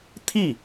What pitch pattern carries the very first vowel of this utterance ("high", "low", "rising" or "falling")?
falling